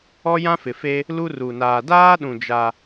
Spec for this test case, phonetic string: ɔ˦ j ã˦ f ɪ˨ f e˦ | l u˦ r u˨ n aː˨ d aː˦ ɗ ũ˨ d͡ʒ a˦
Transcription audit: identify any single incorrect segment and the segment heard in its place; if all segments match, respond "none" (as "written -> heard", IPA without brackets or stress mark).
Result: none